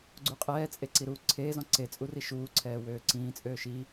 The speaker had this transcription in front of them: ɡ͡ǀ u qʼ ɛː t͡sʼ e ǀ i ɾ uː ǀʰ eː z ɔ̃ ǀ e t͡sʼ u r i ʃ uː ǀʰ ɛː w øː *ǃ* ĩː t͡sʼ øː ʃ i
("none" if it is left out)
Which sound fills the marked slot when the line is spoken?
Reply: ǀ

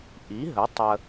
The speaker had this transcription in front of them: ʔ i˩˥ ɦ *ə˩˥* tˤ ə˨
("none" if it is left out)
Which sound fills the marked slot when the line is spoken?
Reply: ə˩˥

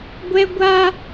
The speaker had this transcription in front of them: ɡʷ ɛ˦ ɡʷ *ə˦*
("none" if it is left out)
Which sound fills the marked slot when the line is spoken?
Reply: a˦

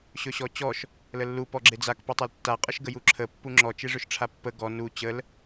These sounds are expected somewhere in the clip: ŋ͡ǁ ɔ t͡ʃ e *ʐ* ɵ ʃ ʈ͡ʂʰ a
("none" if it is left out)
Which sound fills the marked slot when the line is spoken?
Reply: ʐ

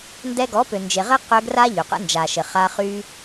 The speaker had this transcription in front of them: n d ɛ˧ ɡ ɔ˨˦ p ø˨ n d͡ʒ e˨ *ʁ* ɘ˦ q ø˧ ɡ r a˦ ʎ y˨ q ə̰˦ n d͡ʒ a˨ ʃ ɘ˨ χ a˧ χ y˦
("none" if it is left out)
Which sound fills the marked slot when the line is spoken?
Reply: ʁ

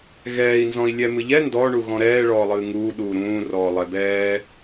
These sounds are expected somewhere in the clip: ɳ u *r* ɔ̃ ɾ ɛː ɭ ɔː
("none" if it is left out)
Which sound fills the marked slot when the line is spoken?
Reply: ɣ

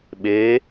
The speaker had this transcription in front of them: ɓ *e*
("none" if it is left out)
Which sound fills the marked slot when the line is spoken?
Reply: eː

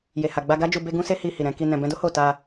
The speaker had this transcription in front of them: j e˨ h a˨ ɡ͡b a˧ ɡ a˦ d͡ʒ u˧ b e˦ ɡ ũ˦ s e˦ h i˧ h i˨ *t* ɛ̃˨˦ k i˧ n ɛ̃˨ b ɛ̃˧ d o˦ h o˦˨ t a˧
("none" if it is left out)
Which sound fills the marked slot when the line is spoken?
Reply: ɾ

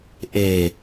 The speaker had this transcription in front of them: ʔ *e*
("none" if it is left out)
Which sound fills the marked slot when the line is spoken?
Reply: e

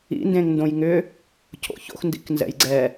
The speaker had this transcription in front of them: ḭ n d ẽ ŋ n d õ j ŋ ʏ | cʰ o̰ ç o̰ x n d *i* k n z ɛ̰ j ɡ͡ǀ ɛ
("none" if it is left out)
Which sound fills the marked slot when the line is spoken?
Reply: ḭ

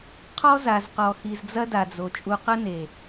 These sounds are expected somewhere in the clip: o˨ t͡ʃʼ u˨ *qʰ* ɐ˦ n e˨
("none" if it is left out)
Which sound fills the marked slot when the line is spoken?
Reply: q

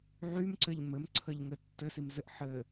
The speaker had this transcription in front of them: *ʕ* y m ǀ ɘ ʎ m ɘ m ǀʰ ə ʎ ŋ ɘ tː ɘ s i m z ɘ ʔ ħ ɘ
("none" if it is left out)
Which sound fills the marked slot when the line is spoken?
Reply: ʕ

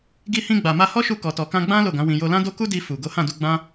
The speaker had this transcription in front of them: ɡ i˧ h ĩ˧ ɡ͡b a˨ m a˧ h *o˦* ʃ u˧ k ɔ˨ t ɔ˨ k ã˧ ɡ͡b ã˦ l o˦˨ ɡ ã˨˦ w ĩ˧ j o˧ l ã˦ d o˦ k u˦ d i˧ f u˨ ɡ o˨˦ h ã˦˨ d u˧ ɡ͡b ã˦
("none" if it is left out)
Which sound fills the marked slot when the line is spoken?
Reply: ɔ˦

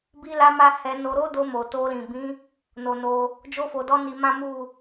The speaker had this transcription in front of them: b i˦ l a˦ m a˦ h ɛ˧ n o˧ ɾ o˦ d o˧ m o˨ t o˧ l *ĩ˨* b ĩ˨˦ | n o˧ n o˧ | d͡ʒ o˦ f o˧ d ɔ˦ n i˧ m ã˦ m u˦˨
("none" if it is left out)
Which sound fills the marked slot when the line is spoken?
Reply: ĩ˨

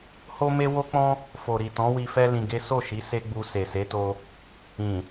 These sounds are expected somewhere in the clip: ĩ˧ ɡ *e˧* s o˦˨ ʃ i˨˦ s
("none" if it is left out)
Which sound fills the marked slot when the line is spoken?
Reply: e˦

